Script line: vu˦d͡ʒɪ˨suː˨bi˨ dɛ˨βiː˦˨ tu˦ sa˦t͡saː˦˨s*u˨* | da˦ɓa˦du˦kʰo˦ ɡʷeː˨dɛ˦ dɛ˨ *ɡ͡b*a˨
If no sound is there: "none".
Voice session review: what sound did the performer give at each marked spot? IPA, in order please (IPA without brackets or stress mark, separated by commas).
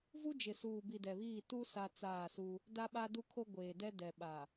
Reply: u˦, ɓ